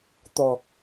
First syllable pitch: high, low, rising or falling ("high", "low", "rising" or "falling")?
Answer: low